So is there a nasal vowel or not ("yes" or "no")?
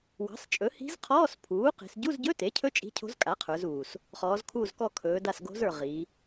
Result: no